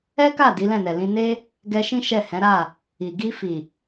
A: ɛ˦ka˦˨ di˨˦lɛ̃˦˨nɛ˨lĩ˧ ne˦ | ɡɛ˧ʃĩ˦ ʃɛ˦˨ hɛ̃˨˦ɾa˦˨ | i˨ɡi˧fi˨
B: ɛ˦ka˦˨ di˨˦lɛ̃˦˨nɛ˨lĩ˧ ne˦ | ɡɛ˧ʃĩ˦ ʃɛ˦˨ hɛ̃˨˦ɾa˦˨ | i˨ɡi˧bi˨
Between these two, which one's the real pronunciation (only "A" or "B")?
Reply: A